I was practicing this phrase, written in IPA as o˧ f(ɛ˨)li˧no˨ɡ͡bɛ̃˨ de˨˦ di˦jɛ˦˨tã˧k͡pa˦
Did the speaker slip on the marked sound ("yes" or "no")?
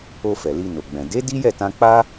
no